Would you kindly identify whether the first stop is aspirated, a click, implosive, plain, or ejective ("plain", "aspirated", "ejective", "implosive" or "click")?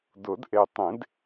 plain